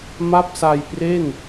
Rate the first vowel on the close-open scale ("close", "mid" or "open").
open